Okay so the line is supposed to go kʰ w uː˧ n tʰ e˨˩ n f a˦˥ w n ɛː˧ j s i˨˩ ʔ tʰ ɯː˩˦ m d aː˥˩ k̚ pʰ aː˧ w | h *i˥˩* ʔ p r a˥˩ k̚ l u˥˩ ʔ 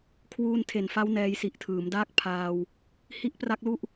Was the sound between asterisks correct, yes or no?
yes